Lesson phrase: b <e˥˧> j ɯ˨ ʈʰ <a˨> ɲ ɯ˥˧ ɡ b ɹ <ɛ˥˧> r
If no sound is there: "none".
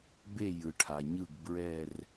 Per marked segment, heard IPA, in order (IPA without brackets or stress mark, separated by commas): e˥˧, a˨, ɛ˥˧